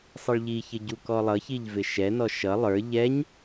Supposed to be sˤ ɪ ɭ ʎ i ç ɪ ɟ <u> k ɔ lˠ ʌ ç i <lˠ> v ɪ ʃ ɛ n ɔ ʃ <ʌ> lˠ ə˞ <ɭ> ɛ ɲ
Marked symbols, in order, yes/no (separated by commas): yes, no, yes, no